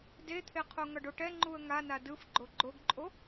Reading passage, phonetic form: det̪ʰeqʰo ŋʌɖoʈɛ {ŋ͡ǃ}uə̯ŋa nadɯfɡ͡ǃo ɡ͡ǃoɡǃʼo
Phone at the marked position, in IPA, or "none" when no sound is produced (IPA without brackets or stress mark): ŋ͡ǃ